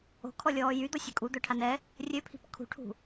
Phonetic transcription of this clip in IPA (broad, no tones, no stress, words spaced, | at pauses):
o̤kʰɔlʲɔː jyd̪ɔsʲœ kʼud̪œʈʰan ɛ | rʲøpʰi̤p kʰṳʈʰṳ